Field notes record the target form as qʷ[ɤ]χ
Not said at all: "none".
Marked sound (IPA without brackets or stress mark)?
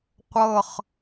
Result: ɤ